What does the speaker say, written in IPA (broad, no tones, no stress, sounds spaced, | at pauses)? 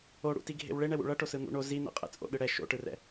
o ɽ ṵ t i ɡʱ ḛ w ɭ e ɳ ɛ w ṵ ɭ ʌ ʈ o s ɯ n̪ ṵ ɳ o z i n̪ ɛ̰ qʼ ɛ̰ t͡sʼ o̰ ɗ ɯ ɽ ɛ ʃ o̰ ʈ ɯ r ɛ̰